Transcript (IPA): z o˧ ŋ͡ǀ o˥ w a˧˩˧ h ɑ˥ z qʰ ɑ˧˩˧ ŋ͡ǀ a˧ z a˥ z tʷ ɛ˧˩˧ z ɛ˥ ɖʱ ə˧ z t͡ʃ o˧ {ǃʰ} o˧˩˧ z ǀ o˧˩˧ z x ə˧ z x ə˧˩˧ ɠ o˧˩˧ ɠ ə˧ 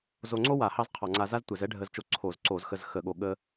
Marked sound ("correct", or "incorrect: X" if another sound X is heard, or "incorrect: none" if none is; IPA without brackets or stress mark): incorrect: ǀʰ